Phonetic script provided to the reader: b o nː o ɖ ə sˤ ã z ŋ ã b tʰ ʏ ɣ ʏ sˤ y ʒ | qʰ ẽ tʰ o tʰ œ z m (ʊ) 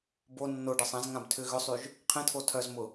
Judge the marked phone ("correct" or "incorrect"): correct